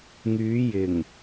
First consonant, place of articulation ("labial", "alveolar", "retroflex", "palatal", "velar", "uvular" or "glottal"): velar